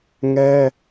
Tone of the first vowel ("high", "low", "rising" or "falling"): high